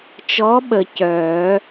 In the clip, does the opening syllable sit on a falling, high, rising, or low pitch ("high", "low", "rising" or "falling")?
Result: rising